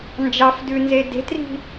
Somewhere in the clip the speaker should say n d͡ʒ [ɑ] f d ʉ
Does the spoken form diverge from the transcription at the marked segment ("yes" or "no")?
no